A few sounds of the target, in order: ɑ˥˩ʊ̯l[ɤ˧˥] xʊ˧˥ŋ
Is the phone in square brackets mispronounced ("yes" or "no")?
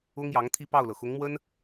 yes